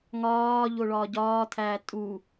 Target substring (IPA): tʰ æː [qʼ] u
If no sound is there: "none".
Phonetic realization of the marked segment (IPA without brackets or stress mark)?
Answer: tʼ